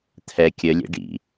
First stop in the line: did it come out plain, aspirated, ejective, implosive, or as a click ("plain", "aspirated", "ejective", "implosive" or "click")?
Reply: aspirated